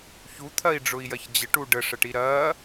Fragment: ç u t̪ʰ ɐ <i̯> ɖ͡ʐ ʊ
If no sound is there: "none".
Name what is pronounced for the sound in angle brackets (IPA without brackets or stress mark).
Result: i̯